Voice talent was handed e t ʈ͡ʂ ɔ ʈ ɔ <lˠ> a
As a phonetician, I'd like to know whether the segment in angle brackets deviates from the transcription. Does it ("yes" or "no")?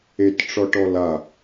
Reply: yes